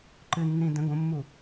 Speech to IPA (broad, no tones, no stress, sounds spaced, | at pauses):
ǃ ɨ nː ĩ d ə̃ ɡ õ mː u